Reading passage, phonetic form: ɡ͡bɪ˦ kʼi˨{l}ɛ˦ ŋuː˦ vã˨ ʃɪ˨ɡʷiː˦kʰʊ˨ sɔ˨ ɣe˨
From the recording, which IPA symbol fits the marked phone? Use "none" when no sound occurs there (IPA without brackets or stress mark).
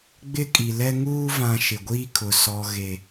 l